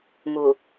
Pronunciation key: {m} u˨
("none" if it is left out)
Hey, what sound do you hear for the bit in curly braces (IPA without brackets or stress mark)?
m